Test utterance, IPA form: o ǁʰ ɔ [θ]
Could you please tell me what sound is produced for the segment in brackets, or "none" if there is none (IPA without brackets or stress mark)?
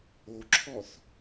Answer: θ